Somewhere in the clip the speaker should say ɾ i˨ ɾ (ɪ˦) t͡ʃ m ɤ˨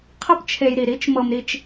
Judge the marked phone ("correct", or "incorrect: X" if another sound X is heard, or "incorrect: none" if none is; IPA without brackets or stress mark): incorrect: i˦